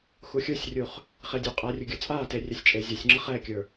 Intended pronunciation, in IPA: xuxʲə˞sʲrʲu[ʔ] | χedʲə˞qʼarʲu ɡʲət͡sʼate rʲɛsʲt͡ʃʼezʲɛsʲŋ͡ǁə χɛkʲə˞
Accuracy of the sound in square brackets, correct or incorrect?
incorrect